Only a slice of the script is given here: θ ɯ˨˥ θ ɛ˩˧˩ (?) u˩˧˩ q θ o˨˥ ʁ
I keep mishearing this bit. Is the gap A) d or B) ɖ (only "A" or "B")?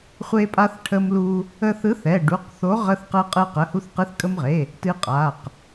B